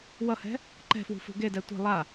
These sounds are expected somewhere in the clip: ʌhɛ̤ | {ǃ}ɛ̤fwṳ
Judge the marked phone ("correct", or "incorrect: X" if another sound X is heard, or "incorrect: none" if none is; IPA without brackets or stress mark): correct